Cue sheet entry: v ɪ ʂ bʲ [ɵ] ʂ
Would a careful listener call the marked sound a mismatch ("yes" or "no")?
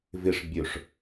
no